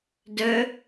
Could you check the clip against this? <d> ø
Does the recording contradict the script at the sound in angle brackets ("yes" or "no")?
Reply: no